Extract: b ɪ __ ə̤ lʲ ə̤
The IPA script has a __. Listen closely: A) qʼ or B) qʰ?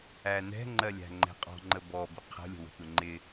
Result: B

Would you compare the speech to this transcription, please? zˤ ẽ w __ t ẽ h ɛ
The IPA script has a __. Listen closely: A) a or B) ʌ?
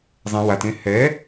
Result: A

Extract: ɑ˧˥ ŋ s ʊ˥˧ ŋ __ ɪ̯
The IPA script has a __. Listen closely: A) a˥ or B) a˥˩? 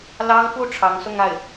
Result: B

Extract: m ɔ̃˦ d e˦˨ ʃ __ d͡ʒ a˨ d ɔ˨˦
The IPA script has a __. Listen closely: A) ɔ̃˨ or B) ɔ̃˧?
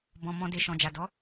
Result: A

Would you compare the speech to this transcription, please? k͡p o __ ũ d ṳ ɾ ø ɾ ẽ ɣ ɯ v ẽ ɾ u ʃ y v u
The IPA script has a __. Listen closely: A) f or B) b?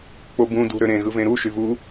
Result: B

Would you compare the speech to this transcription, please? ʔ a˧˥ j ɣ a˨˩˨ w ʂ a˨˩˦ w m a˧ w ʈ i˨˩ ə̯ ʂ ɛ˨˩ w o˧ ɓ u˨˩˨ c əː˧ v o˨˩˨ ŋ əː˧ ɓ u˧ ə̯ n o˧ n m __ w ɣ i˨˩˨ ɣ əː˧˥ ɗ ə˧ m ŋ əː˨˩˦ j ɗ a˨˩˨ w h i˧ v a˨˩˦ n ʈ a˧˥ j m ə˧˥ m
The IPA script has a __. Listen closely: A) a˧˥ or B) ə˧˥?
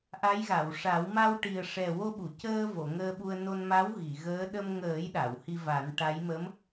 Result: A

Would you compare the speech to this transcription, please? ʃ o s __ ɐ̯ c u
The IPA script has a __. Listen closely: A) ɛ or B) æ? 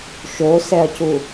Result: A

